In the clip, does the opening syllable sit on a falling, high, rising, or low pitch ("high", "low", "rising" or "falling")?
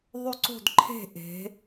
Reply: falling